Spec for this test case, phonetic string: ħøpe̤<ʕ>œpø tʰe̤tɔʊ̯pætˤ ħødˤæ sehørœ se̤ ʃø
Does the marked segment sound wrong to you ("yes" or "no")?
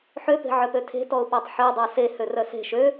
no